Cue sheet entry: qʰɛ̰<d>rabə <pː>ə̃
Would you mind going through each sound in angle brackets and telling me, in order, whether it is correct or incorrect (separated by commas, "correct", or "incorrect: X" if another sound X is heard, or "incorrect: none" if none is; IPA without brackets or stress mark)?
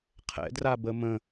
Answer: correct, incorrect: m